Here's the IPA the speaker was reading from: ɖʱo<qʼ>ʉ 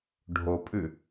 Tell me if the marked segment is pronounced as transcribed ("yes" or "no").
no